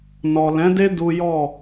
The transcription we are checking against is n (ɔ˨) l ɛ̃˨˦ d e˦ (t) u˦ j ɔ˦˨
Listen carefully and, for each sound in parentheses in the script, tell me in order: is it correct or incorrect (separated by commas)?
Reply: correct, incorrect